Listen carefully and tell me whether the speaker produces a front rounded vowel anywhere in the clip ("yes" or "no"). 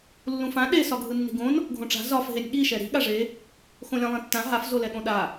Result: no